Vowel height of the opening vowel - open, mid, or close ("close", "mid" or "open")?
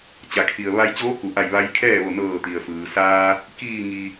open